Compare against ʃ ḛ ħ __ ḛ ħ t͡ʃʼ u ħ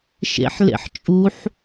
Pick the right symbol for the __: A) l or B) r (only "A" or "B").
A